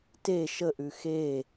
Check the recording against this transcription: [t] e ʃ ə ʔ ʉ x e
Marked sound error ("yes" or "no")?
no